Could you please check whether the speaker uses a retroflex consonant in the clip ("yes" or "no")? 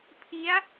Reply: no